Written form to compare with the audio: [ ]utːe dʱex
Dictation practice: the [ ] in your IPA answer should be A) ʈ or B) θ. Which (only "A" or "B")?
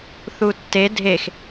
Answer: B